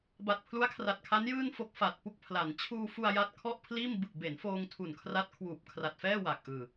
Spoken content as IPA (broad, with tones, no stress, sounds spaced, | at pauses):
b a˨˩ t̚ pʰ l u˦˥ a̯ kʰ r a˨˩ t̚ kʰ a˦˥ n j ɯː˥˩ n f o˦˥ k̚ f a˨˩ t̚ p u˥˩ k̚ pʰ l a˩˦ n t͡ɕʰ uː˧ f u˧ a̯ j a˥˩ t̚ kʰ ɔ˥˩ ʔ pʰ l iː˥˩ m b ɯ˨˩ k̚ b e˩˦ n f oː˧ ŋ tʰ u˨˩ n kʰ r a˦˥ t̚ kʰ w uː˨˩ p̚ kʰ r a˨˩ t̚ f ɛː˥˩ w a˨˩ k̚ ʔ ɯː˨˩